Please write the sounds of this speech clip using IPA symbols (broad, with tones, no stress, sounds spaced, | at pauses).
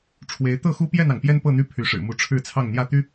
ʈ͡ʂʰ w e˨˦ ɪ̯ t̪ ɤ˥˨ x u˦ p j ɛ˥˨ n ɑ˩ ŋ p j ɛ˦ n p ɤ˥˨ n̪ y˥˨ pʰ y˨˦ ʂ ɻ̩˨˩ m u˨˦ ʈ͡ʂʰ ɻ̩˥˨ t͡sʰ ɑ˥˨ ŋ n̪ j ä˥˨ t̪ y˦